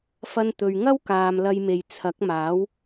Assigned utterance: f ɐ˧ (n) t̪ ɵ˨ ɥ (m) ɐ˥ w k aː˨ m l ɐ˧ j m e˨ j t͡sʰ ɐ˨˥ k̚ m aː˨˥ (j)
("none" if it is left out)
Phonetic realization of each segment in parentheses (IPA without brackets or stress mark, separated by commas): n, ŋ, w